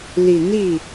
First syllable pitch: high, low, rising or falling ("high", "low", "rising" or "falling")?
low